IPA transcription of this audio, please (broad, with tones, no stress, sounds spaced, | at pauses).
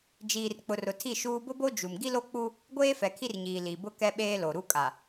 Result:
d͡ʒ iː˨ r k͡p ʊ˨ r ʊ˨ tʰ i˦˨ ʃ uː˦ b ʊ˦ b o˦ d͡ʒ u˨ m ɡ i˦ l o˦ k͡p u˦ | ɡʷ eː˦ f ɛ˨ kʰ i˦ r ɲ iː˨ l i˨ b ʊ˦ k ɛ˦ ɓ eː˦ l o˨ ɾ u˦ kʼ a˨